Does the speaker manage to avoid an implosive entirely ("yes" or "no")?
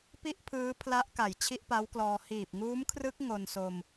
yes